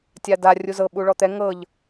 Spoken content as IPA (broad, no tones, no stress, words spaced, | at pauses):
tʲada rʲuzɤ ɓuɭɔt̪ɛ ŋɤʎ